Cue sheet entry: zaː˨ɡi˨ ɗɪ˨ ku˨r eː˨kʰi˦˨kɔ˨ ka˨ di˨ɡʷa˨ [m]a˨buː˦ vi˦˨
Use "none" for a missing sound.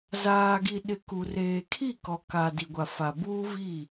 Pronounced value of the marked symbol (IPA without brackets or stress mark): f